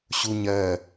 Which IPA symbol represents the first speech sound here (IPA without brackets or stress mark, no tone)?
ɕ